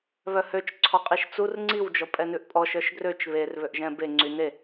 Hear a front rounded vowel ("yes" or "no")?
yes